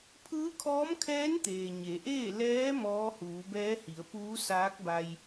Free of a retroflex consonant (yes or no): yes